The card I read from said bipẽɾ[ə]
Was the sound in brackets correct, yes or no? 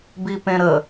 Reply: yes